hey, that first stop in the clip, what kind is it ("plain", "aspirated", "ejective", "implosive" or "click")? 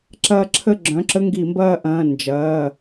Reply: click